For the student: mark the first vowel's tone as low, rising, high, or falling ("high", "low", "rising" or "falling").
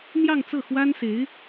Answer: falling